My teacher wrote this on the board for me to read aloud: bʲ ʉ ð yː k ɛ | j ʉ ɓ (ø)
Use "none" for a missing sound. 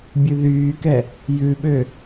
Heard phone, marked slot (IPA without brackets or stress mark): ø